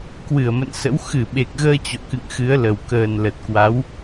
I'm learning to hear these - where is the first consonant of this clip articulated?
velum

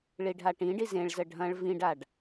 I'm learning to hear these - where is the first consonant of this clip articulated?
retroflex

